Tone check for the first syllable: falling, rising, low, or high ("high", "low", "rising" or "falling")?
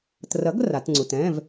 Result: rising